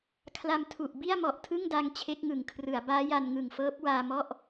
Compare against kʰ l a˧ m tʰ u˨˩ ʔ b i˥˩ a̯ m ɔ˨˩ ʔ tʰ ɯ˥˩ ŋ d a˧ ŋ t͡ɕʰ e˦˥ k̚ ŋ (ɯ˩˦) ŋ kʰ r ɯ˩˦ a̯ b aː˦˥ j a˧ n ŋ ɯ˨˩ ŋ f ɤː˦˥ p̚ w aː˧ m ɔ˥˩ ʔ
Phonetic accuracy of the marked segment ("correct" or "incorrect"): correct